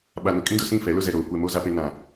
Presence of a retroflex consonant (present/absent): absent